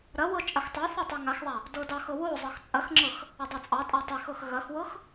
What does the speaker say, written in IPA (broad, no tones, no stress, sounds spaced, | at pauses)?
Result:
ɾ ɐ w ɤ t͡ʃʼ ɐ x tˤ a θ ɐ tˤ e ŋ a x ðˤ a | d ɤ d ɑ x ɤ w o zˤ ɤ x t͡sʼ ɐ x ŋ͡ǁ ɤ x | ɐ dˤ o t͡sʼ ɑ tʼ a tˤ e x ɤ x ɣ ɐ x w ɤ x